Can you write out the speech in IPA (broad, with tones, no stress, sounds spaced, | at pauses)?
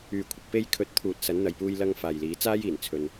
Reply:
yː˨ kʷʰ ɪ˨ k̚ p e˧ j kʰ ɵ˨˥ t̚ t̪ʰ uː˨ t̚ s ɐ˨˧ n n̪ ɐ˨ j p uː˧ j l ɐ˧ ŋ f aː˨ j l iː˨˧ t͡s aː˥ j iː˨˩ n t͡sʰ ɵ˨ n